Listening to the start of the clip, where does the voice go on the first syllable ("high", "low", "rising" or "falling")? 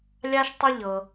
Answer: high